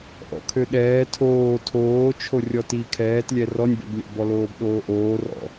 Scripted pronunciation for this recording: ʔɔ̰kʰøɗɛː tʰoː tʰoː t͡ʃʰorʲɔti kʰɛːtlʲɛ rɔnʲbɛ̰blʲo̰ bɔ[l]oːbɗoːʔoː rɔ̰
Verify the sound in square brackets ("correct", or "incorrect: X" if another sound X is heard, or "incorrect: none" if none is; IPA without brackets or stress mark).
correct